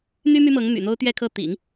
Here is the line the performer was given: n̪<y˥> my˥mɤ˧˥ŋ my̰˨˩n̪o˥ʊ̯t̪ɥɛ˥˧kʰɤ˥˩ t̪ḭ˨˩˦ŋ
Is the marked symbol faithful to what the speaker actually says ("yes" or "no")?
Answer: yes